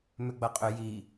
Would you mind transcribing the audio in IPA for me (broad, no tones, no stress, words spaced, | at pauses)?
mʏɡ͡bɐqʼʏ ji